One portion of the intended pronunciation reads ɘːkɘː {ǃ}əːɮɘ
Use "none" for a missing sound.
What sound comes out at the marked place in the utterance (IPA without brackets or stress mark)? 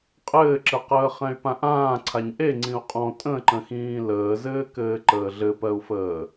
ǃ